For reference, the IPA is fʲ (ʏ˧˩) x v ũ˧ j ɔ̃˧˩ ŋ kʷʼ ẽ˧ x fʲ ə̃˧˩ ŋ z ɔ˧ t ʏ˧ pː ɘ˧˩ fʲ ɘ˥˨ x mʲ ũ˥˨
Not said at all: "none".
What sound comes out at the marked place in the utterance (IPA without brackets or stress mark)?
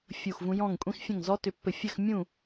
u˧˩